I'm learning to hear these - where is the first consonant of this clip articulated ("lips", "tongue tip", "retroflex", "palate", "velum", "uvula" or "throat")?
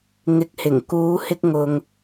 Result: velum